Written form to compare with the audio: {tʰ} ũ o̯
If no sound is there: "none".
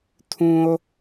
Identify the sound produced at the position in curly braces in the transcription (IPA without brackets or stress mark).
tʰ